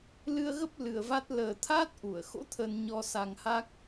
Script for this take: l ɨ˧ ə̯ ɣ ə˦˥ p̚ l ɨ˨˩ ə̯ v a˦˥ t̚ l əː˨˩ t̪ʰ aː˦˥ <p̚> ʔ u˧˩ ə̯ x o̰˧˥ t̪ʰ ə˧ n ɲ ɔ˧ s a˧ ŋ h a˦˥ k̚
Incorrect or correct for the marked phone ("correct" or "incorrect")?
incorrect